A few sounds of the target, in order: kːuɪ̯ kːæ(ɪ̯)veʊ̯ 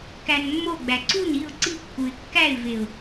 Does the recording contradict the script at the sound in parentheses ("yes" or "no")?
no